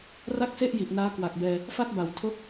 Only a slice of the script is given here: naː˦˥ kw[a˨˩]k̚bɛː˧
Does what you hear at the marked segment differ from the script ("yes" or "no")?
no